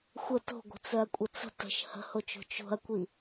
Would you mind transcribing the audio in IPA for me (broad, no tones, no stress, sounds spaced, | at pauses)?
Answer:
xʷ ə t o̤ ɡʷ ə̤ t͡s œ ɐ̯ kʷʼ ə t͡s ə̤ t ə̤ ʃ h ə̤ h o t͡ʃ o̤ t͡ʃ o̤ ɐ̯ kʷ i